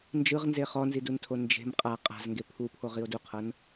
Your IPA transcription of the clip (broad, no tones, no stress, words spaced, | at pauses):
nd͡ʒɯʁnze χɔnziduntʰo nd͡ʒe̤m qʼa qʼa̤zŋɡe pʰupʰoʁio̯ duqʰɤn